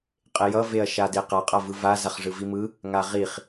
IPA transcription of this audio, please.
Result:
qʼ e j ʌ v e ɐ̯ ʃ a d e q a qʼ a v ɯ v a z a χ ʐ ɯ v i m ɯ | ŋ a ʁ i χ

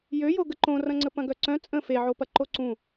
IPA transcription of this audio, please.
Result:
j ø j o ɡ ə ǃ õ r ɐ̃ ŋ͡ǀ ə p ɐ̃ ɡ œ ǀ œ̃ t͡sʼ ə̃ f e ʕ o p ɐ ǃ o ǀ ũ

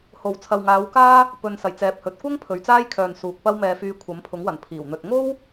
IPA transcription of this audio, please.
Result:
h o˨˩ w t͡sʰ ɐ˨ w ŋ aː˨˧ w k aː˥ | p ɵ˨ n s ɐ˨˩ j t͡s ɛː˨ p̚ h ɵ˨ t̚ kʷ ɐ˥ ŋ pʰ ɵ˨ ɥ t͡s aː˥ j kʰ œː˨ n s uː˨ k̚ p ɐ˥ w m ɛː˧ f yː˧ kʷʰ ɐ˨˥ m pʰ ʊ˨˥ ŋ w ɐ˨˩ n pʰ iː˨˩ w n̪ ɵ˧ t̚ ŋ o˥ w

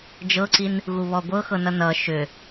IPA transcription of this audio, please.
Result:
d͡ʒ ɤ ǀ i n | ɣ u β ɔ ɡʷ ɤ x ɤ n ʌ n ʌ ʃ ʏ

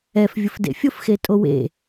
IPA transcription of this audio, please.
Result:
ɛ f vʲ ʊ f d ḛ fʲ ʊ f x e tʼ o w ḛ

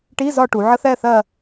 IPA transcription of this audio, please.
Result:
ʈ i˧˥˧ z ɒ˧ ʈ u˩˧ ʕ ə˦˥ θ ɛ˧˥˧ θ ɜ˥˧

